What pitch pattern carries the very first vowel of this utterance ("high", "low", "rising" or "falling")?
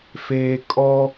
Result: low